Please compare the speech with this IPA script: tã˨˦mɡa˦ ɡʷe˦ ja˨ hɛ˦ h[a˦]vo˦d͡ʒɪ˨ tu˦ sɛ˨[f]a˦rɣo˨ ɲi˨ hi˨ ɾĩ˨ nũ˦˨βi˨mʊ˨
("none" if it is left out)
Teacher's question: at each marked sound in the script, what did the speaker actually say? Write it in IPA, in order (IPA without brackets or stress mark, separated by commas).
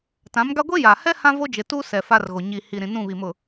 ã˦, f